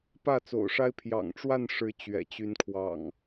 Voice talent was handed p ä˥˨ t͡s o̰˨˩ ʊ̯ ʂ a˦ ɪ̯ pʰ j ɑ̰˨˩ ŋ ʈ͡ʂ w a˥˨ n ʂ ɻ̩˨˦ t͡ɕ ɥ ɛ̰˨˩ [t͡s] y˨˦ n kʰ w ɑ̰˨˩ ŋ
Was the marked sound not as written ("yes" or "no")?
yes